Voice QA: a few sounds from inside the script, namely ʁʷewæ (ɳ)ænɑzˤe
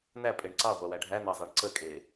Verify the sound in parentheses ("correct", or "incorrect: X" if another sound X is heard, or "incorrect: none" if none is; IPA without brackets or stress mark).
incorrect: ɖʱ